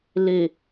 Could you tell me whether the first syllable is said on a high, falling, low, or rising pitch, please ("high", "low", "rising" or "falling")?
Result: low